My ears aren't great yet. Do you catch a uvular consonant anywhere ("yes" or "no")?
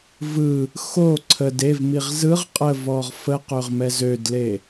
yes